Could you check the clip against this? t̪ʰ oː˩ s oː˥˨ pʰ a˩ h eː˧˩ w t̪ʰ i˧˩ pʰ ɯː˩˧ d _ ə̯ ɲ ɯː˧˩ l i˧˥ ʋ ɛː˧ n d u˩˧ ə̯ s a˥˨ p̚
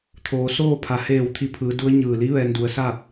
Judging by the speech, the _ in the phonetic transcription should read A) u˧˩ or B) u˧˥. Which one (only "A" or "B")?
B